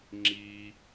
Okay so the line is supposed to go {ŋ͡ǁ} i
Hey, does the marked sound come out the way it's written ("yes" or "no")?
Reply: yes